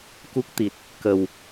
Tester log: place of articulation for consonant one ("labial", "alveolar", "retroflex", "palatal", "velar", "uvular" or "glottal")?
velar